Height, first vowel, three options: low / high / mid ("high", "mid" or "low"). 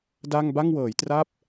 low